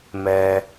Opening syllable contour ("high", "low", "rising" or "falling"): low